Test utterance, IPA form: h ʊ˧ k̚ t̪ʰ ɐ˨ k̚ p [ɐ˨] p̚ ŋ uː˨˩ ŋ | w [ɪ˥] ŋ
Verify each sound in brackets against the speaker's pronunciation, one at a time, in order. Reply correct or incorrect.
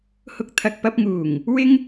incorrect: ɐ˧, correct

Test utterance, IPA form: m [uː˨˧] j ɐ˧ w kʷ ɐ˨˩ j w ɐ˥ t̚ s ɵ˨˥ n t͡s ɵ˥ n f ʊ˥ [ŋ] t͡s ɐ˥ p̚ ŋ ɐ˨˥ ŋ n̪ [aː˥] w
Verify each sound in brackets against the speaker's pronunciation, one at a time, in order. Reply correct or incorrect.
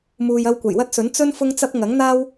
incorrect: uː˨, correct, correct

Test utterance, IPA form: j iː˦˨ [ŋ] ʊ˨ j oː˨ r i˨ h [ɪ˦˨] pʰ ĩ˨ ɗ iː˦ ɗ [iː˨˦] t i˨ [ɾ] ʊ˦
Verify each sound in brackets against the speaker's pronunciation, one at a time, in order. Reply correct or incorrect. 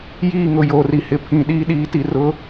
correct, incorrect: ɪ˨, correct, incorrect: r

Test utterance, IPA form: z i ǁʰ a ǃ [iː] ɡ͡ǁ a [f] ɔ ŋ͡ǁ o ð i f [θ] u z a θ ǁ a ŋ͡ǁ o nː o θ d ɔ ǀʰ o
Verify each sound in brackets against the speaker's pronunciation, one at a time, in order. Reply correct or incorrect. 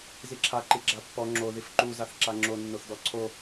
incorrect: i, incorrect: pː, incorrect: ǃ

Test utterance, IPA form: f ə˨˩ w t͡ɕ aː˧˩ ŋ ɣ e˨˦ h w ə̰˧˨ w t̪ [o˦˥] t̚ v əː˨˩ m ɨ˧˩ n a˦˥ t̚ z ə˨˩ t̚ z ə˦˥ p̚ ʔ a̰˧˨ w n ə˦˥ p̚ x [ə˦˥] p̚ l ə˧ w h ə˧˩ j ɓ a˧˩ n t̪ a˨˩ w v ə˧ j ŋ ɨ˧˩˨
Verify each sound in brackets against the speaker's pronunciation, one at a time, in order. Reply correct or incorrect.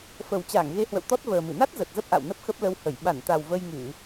incorrect: ɔ˦˥, correct

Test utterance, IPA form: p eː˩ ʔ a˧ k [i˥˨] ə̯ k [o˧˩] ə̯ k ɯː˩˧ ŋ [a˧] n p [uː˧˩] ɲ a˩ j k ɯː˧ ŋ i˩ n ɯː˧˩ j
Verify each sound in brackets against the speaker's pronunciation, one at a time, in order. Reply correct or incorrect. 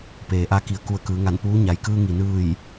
incorrect: i˩˧, incorrect: u˧˩, incorrect: a˧˩, incorrect: uː˧˥

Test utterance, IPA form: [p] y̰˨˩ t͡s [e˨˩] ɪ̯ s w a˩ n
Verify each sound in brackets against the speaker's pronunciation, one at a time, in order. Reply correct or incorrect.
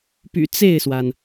correct, incorrect: e˥˩

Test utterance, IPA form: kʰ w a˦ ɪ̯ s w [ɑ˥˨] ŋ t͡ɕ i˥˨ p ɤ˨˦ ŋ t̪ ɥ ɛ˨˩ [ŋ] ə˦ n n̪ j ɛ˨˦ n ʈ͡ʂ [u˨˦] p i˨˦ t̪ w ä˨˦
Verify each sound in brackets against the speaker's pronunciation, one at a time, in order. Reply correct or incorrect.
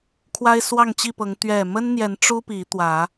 correct, incorrect: m, incorrect: u˦

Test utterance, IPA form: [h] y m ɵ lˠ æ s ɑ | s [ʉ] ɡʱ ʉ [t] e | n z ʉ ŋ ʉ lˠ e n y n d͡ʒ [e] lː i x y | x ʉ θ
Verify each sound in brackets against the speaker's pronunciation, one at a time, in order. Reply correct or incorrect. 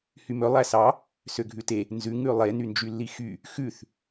correct, incorrect: ø, correct, incorrect: y

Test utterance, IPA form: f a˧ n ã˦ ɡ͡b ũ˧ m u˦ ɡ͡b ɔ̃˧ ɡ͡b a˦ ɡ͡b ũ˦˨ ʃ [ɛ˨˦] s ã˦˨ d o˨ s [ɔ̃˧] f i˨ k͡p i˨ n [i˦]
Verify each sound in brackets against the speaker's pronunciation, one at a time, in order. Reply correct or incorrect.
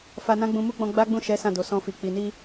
correct, correct, incorrect: i˧

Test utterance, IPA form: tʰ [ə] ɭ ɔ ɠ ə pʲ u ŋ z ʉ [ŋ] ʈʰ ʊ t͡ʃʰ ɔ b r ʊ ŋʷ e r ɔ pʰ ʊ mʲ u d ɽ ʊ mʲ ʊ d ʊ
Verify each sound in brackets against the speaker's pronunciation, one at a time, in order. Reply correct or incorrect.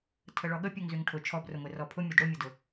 correct, correct

